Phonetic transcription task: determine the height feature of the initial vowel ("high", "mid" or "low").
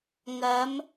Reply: low